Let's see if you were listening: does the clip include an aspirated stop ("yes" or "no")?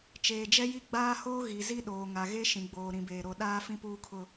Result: yes